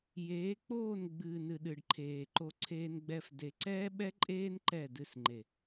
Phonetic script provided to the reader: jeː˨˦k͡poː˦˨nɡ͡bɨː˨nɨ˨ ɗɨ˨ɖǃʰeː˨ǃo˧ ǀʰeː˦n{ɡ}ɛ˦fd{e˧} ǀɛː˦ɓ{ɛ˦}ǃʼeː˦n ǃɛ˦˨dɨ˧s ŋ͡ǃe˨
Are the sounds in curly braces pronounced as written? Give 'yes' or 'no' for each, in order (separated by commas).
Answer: no, yes, yes